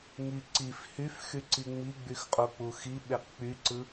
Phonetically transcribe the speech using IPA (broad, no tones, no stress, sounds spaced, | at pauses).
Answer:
ŋ i ǀ i f h y f x y ǀ i ŋ͡m i ɡ͡b y x qʼ o k͡p u x i ɓ e q k͡p y ǀ ɯ